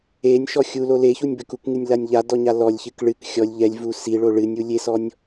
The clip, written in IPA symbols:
e nʲ ʃ ɔ xʲ u l o l e ç u nʲ b ɘ k u k ŋ ɨ nʲ l a nʲ ʎ a d ɔ ɲ a l ɔ lʲ ç ɨ k ɭ ɨ k xʲ ɔ lʲ ʎ ɛ lʲ v u s i ɭ o ɭ ɨ nʲ u lʲ e s ɔ nʲ

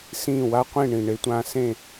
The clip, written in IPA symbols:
s ĩː˥˩ w a˥ qʷ ĩ˥˩ ɳ ĩ˩ ɳ e˧ tʷ ã˧ s ẽ˥˩

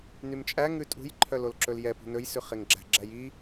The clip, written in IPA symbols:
n y m t͡ʃʼ æ ŋ ʉ tʼ ṳ j ǃʰ œ l o l ǁ ɵ l j ɛ p ṳ n ɵ j s ʉ χ e ŋ ɡ͡ǁ æ̤ ɡ͡ǁ æ j i

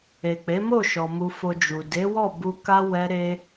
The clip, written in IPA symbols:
e˨ k͡p e˨˦ m o˦˨ ʃ ɔ˨ m u˧ f o˧ d͡ʒ u˨ d e˨˦ w ɔ˦˨ b u˧ k a˦ w ɛ˦ ɾ e˦

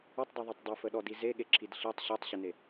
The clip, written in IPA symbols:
ə tˤ dˤ e ðˤ o tˤ dˤ i f ə ɗ ɔ d i z e ɠ e ǁʰ i d ɬ i tˤ ɕ o tˤ ɕ ə n e

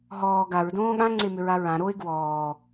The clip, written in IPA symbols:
ɦ ɔː ɡ a ɹ d õː ɠ ã ŋ͡ǀ e m ʏ ɹ a ɹ ã ɾ o ɪ̯ ɡ w ɔː

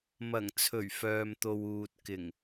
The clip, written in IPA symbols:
m ɐ˨˩ ŋ t͡sʰ ɵ˨˩ ɥ f œː˨ m t̪ o˨ w uː˨ t̚ k ɪ˨˩ ŋ

